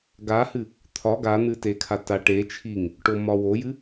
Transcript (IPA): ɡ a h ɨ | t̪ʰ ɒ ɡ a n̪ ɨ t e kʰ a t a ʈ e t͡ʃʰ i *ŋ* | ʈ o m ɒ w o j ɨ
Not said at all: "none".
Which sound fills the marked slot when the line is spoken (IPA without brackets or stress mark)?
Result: ŋ